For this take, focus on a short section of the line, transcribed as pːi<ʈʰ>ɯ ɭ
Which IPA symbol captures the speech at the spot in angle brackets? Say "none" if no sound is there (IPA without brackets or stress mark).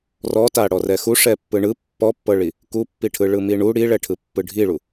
ʈʰ